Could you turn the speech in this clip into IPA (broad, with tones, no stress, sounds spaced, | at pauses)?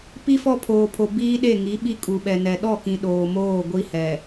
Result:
p i˦ f ɔ˦ pʰ oː˨ pʰ o˨ b iː˦ ɗ e˦˨ ŋ i˨˦ ɓ i˦ kʼ u˨ ɓ ɛ˨ n ɛ˨ ɗ ɔ˦˨ k ĩ˨ ɗ oː˨ m oː˦˨ ɡʷ i˦ h ɛ˨